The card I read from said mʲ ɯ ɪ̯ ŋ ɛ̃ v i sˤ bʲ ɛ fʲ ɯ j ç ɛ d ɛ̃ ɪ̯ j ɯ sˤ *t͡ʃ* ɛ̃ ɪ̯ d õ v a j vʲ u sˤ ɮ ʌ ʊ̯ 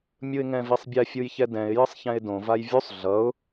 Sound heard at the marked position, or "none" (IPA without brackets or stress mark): ç